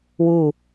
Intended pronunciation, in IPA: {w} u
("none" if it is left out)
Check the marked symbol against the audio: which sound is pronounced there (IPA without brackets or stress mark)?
w